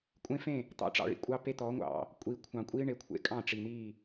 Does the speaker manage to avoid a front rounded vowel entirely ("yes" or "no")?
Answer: yes